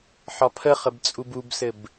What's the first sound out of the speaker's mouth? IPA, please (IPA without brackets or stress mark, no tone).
ħ